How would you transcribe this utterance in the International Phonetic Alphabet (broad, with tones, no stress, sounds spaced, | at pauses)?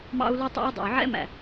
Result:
m ɑ̰˦ u̯ l u˦ tˤ ɑ̰˦ y̯ dˤ ɛ̰˨ y̯ ʕ ɛ̰˦ m æ̰˨